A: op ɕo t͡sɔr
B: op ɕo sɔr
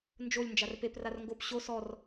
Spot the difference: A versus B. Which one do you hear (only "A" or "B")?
B